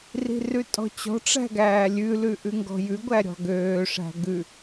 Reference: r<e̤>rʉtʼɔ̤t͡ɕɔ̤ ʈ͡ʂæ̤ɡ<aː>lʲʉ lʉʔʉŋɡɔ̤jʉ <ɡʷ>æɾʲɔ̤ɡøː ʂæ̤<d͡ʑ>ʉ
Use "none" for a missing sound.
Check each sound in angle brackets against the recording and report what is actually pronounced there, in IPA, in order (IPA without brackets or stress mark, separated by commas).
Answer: i̤, æː, ɡʷ, ɡ